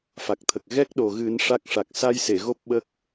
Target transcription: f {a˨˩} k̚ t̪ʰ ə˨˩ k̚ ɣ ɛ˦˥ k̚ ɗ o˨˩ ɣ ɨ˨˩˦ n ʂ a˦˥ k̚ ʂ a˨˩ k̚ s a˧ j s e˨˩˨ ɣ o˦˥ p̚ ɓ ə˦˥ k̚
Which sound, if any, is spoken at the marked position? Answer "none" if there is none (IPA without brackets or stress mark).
a˨˩